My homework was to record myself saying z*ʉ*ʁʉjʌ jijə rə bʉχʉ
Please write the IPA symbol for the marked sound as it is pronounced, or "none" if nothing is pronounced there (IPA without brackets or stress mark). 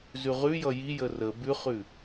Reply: ʉ